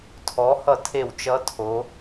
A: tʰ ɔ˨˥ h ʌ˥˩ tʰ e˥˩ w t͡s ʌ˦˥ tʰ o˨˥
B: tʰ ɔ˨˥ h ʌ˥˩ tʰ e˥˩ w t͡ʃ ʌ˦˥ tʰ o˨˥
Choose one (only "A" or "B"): B